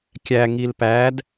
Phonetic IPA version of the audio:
kʲæ ŋilpæd

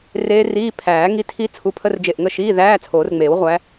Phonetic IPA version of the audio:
reː˦˥riː˧˥˧ pʰæː˨˩˦ ŋi˧˥˧tʰi˦˥ t͡sʰu˨˦pʰə˧˥˧rd͡ʒe˧˩ʔ ŋə˥˨ ʃiː˧˥˧ðæː˧˥˧ t͡sʰoː˨˩˦rŋ͡meː˨˩˦wʁʷæ˨˦

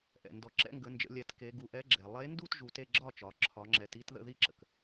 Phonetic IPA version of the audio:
ʔɛ̰˩ ndɔ˩ǁɛ̰˥˨ŋɡə˩˧nd͡ʒə̰˩˧ lʲɛ˩˧tke˩˧ ɡu˩˧ʔɛ˨˥ɡ͡ǁɛ˩ lˠe˨˥ndu˥˨tʒu˩˧t e˥˨ɡ͡ǁɒ˥˨t͡ʃɒ˩˧ ǁʰɒ˩˧ŋ͡ǁɛ˩˧ti˥˨t ðə̰˥˨ði˥˨ǁə̰˩k

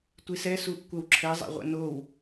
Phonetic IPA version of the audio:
tʷisɛ suʔkʷəwǁʰɛ zˤa̰ʁʷə̰now

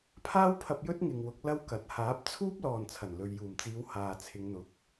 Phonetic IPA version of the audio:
pʰaː˥wpʰɐ˧p̚ jɵ˥t̚ŋɪ˨ŋwʊ˨˥k̚ lɐ˥wkɐ˨˥t̚ haː˨˥p̚t͡sʰuː˥p̚ lɔː˨nt͡sʰɐ˨˩nlɵ˨ɥ juː˨˩mt͡siː˨˧w haː˨t͡sʰɪ˨˧ŋn̪ʊ˨˥k̚

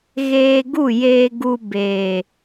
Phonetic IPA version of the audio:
ɣeː˧ɡu˦˨jeː˧ɡu˧ beː˨

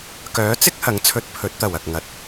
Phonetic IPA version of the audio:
kœː˨˥t͡sɪ˥k̚ hɐ˨˥ŋt͡sʰɵ˧t̚ pʰɵ˨˥t̚t̪ɐ˨˩wɐ˨k̚ ŋɐ˨˥t̚

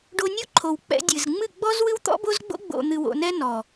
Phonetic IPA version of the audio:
ɖo˧nʲo˦ ǃʰo˨wk͡pɛ̰˧ dʲɨ˨z ŋ͡mɨ˦˨ɡ͡bɔ˦z wɨ˦wt̪ɔ̰˦bo˦zɡ͡bo̰˦ ɡ͡bo̰˨n̪ɨ˨wo̰˨nɛ˧ nɔ˨

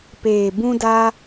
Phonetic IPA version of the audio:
peː˨bũ˧daː˧

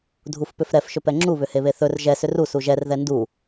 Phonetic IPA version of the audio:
dʱufpʏfɾɛf ʃɵpɛŋ͡ǁu βʏheβeθɵr ʒɛ sʏru suʒɛr ðɛndu

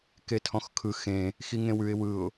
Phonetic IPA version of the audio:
ketʰɔ̃xkʰɯ xẽ | xiŋẽwʉɪ̯ wɯʊ̯

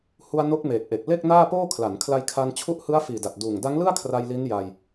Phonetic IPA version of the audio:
hu˧a̯ no˦˥k̚meː˨˩k̚ʔe˨˩k̚ le˥˩k̚naː˥˩poː˥˩ kʰla˩˦nkʰla˧jkʰa˧n t͡ɕʰu˦˥ʔhɯ˦˥a̯ fiː˨˩da˨˩t̚ duː˨˩ŋda˦˥ŋlɯ˥˩a̯kʰra˧j li˦˥n ja˧j

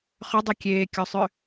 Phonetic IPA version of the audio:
χʏdˤi kʲeːkʲosˤʏ

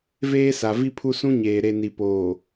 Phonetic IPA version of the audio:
veː˦sa˨vi˦pʰu˦ sũ˦ɲeː˨ ɾe˨ni˨poː˨

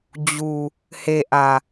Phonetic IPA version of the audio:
d͡ʑu˨ | he˨ʔä˨

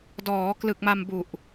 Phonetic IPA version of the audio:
dɔː˩˦ klɯ˨˩k̚ma˧mbu˨˩ʔ

